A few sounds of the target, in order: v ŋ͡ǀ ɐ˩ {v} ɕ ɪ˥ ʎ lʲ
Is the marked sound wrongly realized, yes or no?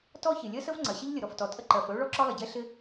yes